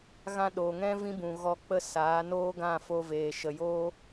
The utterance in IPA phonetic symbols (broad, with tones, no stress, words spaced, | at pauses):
ɣã˦ ɗoː˨ŋɛ̃˦ vĩ˦bũ˨ɣɔ˧k͡pə˦˨ saː˨˦noː˦ɡã˦˨fo˧ veː˨ʃə˨joː˦